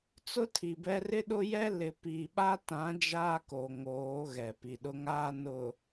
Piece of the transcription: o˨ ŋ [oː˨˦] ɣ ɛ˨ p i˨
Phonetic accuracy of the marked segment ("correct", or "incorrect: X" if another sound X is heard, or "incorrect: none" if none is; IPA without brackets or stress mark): correct